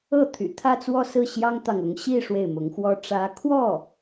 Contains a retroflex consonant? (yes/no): yes